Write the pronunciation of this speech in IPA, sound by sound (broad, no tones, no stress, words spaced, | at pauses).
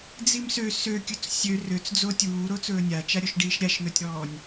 d͡zimsø søkʲɵt͡s sʲø røt͡sd͡zo tʲuːɾot͡sɵː nʲat͡ʃaɾʲoʃɖiːʃ ɾʲaʃn̪ɵtʲɾɔːnʲ